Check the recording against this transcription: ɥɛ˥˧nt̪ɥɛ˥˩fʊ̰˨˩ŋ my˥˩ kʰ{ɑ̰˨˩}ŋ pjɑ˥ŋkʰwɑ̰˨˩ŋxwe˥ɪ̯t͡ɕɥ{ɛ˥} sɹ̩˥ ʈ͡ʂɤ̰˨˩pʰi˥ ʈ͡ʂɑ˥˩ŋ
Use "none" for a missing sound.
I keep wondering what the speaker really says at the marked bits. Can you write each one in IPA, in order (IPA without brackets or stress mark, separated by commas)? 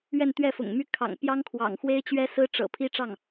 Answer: ɑ̰˨˩, ɛ˥